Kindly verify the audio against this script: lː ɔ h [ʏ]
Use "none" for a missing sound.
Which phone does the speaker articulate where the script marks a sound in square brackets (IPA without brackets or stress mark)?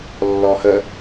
ə